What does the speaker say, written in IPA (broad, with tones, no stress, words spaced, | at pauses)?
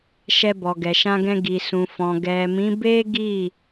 ʃɛ˧bɔ˨ɡɛ˨ ʃã˧ɡɛ̃˧ ɡi˨sũ˨ fɔ̃˨ ɡɛ˨mĩ˨˦ be˦ɡi˦˨